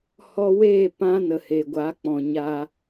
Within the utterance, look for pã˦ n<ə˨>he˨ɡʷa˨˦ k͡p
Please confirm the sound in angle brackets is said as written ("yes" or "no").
yes